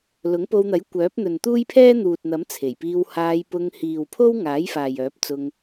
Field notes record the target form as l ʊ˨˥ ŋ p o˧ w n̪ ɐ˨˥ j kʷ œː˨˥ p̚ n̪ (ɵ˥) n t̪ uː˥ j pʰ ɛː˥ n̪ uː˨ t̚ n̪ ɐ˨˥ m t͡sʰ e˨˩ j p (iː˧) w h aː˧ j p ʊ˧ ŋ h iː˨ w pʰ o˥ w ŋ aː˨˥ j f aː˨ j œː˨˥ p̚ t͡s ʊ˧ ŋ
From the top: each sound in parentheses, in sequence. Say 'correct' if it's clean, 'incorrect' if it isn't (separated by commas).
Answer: incorrect, correct